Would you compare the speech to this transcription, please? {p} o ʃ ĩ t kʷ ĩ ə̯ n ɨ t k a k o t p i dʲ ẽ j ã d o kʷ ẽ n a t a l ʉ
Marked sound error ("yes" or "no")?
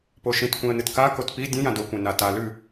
no